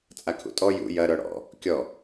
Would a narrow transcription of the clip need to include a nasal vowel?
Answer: no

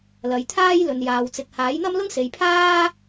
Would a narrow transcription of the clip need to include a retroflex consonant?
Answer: no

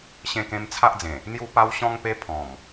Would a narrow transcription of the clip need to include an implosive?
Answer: no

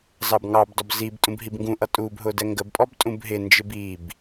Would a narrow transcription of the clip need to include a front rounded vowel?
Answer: no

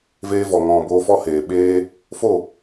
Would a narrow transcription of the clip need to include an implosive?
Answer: yes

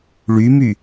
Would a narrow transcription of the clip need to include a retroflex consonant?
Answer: yes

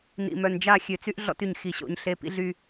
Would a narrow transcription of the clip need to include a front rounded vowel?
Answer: yes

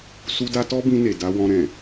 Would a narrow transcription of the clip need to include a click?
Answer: no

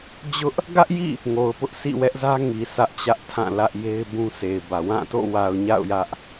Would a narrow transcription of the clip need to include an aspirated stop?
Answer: yes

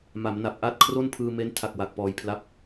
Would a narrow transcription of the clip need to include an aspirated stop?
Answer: yes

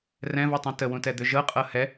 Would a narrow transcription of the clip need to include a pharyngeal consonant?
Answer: no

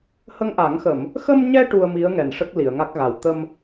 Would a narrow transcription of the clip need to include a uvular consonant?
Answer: no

